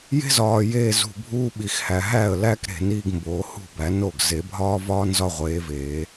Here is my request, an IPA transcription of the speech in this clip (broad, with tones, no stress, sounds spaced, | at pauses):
j e̤˥ z ɒː˨ j eː˥˧ z ṳ˨ bʱ uː˥ ɓ i˨ x h æ˨ ɦ æ˥˩ ə̯ l æ˥ k ɾ e̤˨˩˦ n iː˥˧ ɡ m b oː˨˩˦ h ṳ˥˩ b æ˨˩˦ n o˥˩ ɡ z e˨˩˦ bʱ ɒː˥ v ɒː˥ n z ɒ˥˧ ʁʷ eː˨˥ v eː˨˩˦